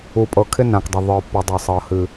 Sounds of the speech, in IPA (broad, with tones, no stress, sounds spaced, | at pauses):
u˨ pʼ ɤ˨ kʰ ɪ˦ n ã˨ k dˤ ɪ˨ ðˤ ə˞˨ pː ɤ˨ dˤ ə˞˨ sˤ ɤ˨ h ɨ˨